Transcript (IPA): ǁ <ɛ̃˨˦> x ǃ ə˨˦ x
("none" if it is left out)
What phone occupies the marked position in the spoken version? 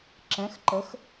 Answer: ɛ̃˨˦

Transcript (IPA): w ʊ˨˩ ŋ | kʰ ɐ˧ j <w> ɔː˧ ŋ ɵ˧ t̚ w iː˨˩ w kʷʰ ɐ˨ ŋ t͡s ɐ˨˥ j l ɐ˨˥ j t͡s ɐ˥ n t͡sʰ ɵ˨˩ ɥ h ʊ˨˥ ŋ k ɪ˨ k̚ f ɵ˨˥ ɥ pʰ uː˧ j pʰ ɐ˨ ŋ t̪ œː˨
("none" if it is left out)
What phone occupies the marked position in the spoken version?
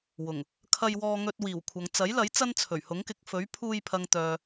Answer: w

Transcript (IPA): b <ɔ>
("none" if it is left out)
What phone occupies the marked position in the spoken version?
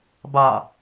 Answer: ɑ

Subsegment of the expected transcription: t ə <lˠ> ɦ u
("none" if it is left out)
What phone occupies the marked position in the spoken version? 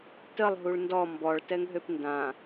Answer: lˠ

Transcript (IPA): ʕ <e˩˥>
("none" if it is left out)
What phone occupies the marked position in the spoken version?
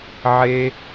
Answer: e˦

